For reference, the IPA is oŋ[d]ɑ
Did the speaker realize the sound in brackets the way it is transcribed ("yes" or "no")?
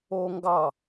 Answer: no